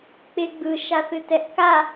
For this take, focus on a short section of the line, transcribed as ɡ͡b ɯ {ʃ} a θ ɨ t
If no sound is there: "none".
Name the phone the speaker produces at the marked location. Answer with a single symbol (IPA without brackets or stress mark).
ʃ